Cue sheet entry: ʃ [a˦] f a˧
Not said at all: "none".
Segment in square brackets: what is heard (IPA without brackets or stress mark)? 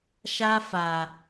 a˦